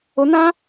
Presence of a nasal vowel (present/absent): present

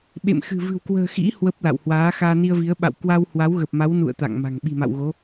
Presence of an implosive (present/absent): present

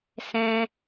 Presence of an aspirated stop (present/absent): absent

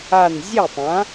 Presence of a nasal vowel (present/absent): present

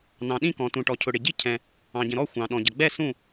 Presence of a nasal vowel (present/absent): present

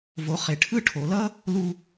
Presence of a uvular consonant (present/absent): present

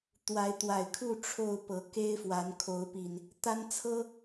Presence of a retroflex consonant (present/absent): present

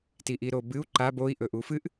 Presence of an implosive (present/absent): absent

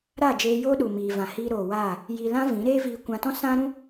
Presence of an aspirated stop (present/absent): absent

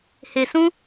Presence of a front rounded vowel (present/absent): absent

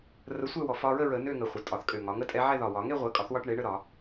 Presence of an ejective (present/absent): present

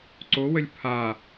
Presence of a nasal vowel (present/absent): absent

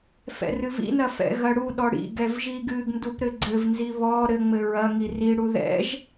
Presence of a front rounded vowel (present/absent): absent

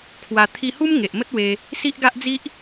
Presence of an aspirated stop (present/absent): present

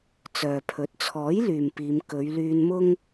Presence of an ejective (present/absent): absent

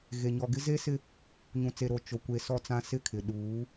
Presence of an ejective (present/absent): absent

